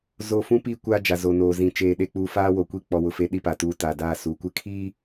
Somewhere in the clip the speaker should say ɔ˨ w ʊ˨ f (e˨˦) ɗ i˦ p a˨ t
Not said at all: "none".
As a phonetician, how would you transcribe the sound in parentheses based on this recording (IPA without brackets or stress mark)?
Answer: e˨˦